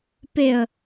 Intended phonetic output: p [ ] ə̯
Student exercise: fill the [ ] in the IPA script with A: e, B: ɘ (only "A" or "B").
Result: A